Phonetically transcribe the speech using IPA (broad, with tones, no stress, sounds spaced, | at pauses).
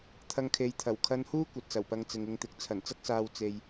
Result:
t̪ʰ ɐ˧ ŋ kʰ e˨˧ j t̪ʰ ɐ˨˩ w kʰ ɐ˧ n h uː˥ kʷ ɐ˨ t̚ s ɐ˨˩ w p ɐ˧ ŋ t͡s ɪ˨ ŋ ɪ˧ ŋ t̪ ɪ˨˥ k̚ t͡sʰ ɐ˨˩ n t͡s ɐ˥ k̚ s aː˧ w t͡s e˧ j